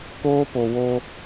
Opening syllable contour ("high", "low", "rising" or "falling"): high